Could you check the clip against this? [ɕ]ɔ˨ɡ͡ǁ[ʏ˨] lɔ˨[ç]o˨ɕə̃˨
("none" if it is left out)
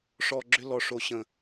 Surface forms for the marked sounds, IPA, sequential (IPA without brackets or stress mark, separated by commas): ʂ, ʏ˦, ʂ